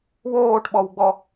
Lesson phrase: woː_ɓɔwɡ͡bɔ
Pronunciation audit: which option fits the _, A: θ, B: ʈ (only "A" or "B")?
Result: B